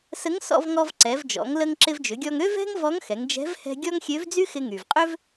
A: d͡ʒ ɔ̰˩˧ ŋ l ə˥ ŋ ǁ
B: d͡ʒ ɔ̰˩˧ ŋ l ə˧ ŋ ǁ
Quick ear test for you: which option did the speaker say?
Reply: B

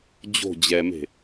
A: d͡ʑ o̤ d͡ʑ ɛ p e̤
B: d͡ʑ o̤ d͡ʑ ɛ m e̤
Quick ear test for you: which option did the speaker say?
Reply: B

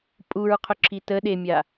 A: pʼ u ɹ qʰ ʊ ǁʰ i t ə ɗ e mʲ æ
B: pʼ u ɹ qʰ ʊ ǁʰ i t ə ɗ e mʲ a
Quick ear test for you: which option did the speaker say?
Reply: B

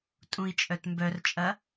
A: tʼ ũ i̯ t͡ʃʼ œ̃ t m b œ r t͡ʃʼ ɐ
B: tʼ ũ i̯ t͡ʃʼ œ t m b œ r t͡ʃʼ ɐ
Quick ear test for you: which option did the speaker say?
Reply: B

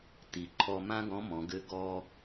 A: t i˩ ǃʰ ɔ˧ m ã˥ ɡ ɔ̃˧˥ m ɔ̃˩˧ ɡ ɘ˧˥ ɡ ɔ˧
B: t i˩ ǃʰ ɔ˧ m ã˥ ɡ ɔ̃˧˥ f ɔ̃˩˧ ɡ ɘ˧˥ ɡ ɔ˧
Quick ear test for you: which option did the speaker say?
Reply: A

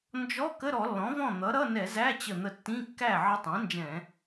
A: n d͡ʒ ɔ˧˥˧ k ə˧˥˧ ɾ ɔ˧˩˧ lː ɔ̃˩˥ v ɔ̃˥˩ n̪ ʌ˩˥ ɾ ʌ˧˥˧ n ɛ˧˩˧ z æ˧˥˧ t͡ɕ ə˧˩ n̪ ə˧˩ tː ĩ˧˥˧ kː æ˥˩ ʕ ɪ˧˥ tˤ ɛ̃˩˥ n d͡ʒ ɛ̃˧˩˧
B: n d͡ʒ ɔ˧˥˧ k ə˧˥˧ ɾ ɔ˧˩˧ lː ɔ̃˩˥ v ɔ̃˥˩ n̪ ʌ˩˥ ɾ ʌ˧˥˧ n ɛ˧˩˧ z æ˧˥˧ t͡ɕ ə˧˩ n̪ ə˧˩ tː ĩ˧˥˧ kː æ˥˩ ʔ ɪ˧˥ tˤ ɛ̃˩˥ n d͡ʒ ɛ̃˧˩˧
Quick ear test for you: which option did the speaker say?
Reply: A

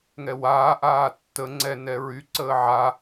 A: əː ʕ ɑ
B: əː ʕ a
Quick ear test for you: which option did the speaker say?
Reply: B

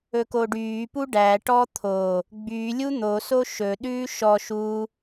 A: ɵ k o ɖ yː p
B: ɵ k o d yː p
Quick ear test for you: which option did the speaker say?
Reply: A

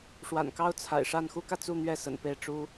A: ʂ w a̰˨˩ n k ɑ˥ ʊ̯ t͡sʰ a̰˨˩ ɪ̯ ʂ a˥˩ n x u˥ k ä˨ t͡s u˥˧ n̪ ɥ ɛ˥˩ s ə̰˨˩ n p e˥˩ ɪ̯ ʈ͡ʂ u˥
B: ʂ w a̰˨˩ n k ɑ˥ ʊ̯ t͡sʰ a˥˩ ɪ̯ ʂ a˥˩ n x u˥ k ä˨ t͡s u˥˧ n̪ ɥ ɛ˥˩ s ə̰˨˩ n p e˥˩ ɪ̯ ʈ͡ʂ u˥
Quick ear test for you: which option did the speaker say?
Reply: A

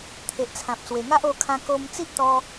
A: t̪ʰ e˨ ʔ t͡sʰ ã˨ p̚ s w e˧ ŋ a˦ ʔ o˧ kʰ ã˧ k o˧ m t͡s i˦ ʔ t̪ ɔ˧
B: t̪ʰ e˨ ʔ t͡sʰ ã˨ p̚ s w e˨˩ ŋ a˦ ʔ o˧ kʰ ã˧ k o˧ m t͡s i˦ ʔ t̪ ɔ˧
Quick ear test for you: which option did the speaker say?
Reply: B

